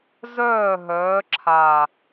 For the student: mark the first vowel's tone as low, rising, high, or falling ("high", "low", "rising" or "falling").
falling